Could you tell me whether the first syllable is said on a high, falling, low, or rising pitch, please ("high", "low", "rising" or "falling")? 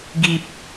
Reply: low